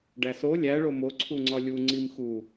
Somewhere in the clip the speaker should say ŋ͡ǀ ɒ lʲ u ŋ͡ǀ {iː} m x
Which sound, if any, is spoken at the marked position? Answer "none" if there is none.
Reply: i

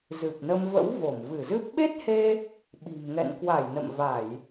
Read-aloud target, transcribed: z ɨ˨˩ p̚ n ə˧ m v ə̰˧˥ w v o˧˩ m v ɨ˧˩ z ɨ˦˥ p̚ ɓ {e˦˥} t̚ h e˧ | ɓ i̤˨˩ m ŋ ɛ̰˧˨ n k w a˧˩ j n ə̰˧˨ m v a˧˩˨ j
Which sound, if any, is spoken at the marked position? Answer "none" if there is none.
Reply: e˦˥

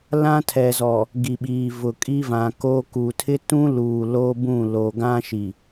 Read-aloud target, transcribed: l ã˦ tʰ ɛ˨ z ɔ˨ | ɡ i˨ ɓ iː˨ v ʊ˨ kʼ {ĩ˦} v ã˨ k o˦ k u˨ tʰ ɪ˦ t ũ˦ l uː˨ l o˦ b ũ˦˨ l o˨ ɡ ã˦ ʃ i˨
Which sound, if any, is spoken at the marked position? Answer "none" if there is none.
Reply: i˦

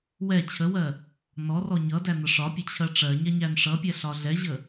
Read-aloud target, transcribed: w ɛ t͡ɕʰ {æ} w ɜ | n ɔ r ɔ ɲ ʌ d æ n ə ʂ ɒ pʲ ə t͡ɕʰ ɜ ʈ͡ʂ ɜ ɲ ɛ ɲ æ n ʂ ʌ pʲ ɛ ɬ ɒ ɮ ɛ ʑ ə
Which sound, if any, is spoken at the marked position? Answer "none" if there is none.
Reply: ə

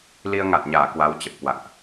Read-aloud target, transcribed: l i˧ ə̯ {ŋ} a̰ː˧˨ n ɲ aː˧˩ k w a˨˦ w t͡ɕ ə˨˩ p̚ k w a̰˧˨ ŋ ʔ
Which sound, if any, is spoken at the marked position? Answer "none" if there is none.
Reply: ŋ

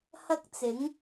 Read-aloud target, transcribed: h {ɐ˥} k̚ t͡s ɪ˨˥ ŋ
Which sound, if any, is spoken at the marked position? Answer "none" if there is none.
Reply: ɐ˥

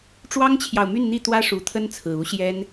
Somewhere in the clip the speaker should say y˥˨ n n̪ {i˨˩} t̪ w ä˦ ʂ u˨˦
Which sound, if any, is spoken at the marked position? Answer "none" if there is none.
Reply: i˥˨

